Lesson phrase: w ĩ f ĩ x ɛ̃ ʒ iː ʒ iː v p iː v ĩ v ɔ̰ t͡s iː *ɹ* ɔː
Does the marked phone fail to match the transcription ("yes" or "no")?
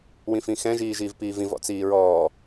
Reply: no